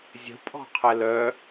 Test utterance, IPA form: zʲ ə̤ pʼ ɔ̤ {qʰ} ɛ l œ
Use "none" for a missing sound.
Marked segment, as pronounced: qʰ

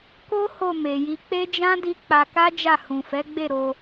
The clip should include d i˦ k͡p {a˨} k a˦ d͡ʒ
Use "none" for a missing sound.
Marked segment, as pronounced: a˧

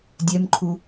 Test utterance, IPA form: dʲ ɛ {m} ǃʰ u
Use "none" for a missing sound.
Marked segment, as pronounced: m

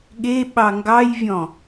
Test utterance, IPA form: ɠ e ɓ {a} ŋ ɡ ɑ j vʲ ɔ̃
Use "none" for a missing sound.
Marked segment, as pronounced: ɑ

